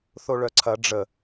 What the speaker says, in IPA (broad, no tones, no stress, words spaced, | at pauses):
θoɭœǀʰɐ ɖ͡ʐə